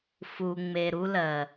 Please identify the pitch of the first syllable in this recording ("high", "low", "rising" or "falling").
low